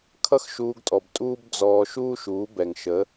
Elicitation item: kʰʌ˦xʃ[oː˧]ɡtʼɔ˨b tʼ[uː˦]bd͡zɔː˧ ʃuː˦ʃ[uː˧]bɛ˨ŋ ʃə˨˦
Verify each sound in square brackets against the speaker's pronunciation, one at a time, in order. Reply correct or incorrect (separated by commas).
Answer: incorrect, correct, incorrect